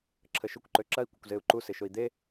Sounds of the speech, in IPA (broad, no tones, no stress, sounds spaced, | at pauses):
ǁʰ ə ʃ ʊ kʷ ǃ ø ǁ ɐ i̯ kʷ ə kʷ z e u̯ ǃ u s ɪ ʃ ʊ i̯ d̪ e